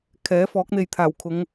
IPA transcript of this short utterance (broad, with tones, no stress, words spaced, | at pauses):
kʰɛː˨˥fɔː˨˥k̚n̪e˨j t̪ʰaː˨˩wkʰʊ˨˧ŋ